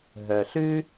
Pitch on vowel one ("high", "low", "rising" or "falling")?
low